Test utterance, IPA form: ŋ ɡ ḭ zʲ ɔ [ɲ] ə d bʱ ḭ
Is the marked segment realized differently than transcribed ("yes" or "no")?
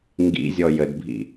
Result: yes